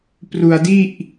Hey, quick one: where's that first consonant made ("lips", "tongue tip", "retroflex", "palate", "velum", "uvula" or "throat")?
lips